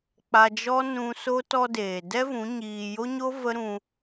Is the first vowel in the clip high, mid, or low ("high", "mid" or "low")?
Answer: low